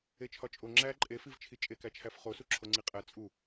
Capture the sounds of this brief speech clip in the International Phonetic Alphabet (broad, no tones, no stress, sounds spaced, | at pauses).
e t͡ʃʰ ɒ t͡ʃʼ o ŋ͡ǁ æ ǃʼ e f i v t͡ʃʰ i t͡ʃʼ e k æ t͡ʃʰ æ f χ o s u ǁʰ o ŋ͡ǀ i qʼ æ t͡sʼ u